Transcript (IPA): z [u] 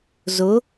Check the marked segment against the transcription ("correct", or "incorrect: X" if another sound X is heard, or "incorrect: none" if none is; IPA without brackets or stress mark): incorrect: ʊ